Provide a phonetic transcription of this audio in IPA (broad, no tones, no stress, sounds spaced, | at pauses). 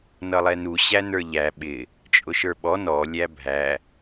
n ʌ lˠ ɛ n u ɕ æ n ə˞ ʎ æ ɓ ɪ | t͡ʃʼ ʊ ʃ ə˞ ɓ ɔ n ɔ lʲ æ bʱ æ